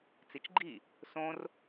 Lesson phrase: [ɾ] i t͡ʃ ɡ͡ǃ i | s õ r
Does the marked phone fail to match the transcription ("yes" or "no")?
yes